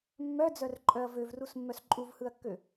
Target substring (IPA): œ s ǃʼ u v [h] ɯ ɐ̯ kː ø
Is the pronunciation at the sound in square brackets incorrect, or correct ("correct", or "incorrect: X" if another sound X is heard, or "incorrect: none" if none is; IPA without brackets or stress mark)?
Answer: correct